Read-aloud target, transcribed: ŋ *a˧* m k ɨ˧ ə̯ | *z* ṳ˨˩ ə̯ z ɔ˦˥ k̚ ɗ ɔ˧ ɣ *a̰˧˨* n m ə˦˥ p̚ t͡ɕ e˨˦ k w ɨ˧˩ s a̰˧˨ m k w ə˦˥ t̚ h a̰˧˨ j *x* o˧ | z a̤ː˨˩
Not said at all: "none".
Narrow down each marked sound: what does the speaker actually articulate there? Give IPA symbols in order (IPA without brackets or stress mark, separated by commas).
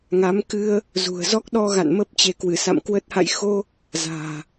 a˨˦, z, a̰˧˨, x